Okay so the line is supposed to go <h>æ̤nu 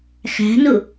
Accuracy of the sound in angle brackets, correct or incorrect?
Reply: incorrect